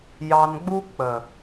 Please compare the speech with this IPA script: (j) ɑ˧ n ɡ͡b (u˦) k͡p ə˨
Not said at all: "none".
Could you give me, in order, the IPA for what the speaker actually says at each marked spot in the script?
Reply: j, u˦

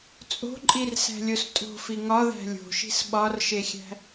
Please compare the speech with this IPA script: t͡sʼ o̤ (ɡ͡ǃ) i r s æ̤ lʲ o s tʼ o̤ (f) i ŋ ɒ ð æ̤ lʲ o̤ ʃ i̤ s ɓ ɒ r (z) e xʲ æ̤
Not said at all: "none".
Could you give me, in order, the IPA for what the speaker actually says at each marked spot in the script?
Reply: ǃʼ, f, ʃ

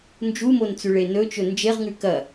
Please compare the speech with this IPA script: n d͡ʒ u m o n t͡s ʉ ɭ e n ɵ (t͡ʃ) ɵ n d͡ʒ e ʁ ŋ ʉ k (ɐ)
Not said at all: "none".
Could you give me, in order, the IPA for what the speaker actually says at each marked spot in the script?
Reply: t͡ʃ, ɐ

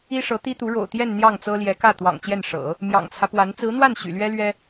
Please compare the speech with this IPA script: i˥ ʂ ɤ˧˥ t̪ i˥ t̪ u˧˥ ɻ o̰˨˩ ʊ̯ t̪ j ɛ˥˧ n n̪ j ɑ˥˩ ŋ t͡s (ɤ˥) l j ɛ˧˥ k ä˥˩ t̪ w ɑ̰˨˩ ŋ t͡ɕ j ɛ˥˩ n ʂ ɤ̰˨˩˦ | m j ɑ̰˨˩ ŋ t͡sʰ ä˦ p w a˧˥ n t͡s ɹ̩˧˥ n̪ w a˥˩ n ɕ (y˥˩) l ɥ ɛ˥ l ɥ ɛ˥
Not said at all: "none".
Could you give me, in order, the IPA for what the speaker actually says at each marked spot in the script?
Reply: ɤ˥, y̰˨˩

